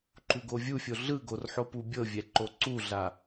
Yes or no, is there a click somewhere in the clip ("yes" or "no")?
yes